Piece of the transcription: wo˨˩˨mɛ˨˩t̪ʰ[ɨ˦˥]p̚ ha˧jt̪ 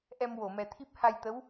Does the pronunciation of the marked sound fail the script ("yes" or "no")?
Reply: yes